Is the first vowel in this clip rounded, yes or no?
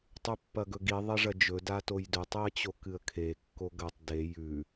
yes